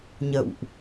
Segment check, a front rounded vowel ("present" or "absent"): absent